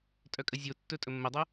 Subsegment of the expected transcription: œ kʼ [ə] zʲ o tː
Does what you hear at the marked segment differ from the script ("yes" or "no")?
no